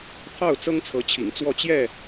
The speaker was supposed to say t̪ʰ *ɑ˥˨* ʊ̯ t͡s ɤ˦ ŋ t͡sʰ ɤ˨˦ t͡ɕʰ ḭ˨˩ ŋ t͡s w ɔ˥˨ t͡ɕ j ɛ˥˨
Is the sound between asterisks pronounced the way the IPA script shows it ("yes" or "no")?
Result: yes